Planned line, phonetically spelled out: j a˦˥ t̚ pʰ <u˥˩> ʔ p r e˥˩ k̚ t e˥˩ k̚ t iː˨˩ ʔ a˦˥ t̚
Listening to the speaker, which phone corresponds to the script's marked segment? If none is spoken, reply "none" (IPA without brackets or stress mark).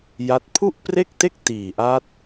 u˥˩